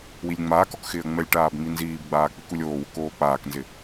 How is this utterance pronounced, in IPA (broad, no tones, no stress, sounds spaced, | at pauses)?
w i lʲ ŋ͡m aː k ɔ k x ɪː ə̯ ŋ͡m ɛ lʲ ʈ aː b ŋ͡m i n z iː b ɡ͡b aː k͡p i k u lʲ oː w ʊ k oː k͡p aː k n z ɪ